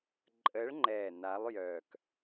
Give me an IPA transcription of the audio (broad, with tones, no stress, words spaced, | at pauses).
ǃʼə˨˦ɭŋ͡ǃɛ˨˩ na˨˦lˠjœ˨˩k